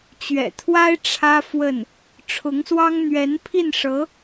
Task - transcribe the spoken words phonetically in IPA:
t͡ɕ ɥ ɛ̰˨˩ t̪ʰ w a˥ ɪ̯ ʈ͡ʂʰ ä˥ f w ə˥˩ n | ʈ͡ʂʰ ʊ˧˥ ŋ s w ɑ˥ ŋ n̪ ɥ ɛ˧˥ n pʰ i˥˩ n ʂ ɤ˧˥

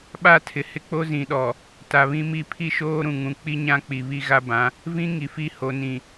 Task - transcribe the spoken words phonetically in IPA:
ɓ a˦˨ tʰ ɪ˨ h ɪ˦ k͡p o˦ z ĩ˨ ɗ ɔ˨ | t a˨ β ĩ˦ m i˦˨ pʰ i˦ ʃ oː˦ ɾ ũ˨ ŋ ũ˨ k͡p i˦ ɲ ã˦ k͡p i˨ β i˦ ɣ a˦ b ã˨˦ | v ĩ˦ ŋ i˨ f i˦ h o˨ n ĩ˨

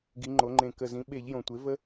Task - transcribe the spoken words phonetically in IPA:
ɡ i˩˧ ŋ͡ǃ o˩˧ ŋ͡ǃ ẽ˨˩ k ə˨˩ z ĩ˩˧ ɓ e˧˩˧ ʎ j õ˨˩ tʷ e˩˥ v ə˦

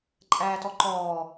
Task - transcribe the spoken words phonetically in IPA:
ǃʼ æː t ɔ ǃ ɔː

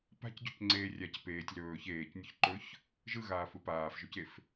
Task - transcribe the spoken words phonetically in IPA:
p a̤ c ɟ o c ŋ͡ǀ eː rʲ a c p eː tʲ l ɵː ç eː c nʲ ɵ ç ǃ ɵ ç | ʒ ɯ ɣ aː f ɯ p aː f ʒ ɵ c e f

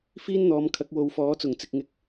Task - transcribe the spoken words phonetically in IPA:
f iː˥ n n̪ ɔː˨˧ m kʰ ɐ˨˥ k̚ w o˨˧ w f ɔː˨˥ t͡s ʊ˨˩ ŋ t͡s ɪ˨ k̚ ŋ ɪ˨˥ k̚

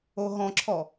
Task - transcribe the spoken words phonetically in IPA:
o ɦ ɔ̃ ǁʰ ɔ

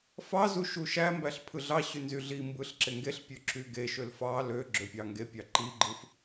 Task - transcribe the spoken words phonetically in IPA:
f ɑ z u ʃ u ʃ æ m b æ ɬ pʰ ɯ ɮ ɑ ɕ y n z y ɮ i m b ɯ ɬ ǁ e ŋ ɡ e ɬ pʲ ø ǁ y ɡ e ʃ ø l f ɑ l ø ɡ͡ǁ ø pʲ ɑ ŋ ɡ e pʲ ɑ ǃ i ɡ͡ǃ ɯ f

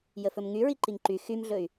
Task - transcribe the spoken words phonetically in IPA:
j ə f ɵ m ŋ y ɹ i ǃ i ŋ ǃ y x y m ɮ ɵ y̯

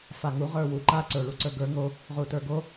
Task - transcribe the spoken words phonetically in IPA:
f a ŋ u ʁ ə˞ w u ǃ a ǀ ə˞ ɭ u ǀ ə˞ ɡ ə˞ ŋ o | ʁ u t ə˞ ɡ o

